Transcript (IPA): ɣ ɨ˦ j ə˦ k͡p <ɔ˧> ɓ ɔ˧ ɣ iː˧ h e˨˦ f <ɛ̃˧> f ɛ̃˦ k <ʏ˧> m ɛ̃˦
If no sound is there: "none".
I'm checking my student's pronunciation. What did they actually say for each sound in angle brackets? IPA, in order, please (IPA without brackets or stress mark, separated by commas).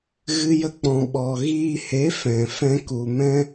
ɔ̃˧, ɛ̃˨, u˧